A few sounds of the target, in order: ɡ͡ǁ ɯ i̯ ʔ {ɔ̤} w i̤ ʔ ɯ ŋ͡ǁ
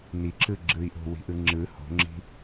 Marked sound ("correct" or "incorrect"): incorrect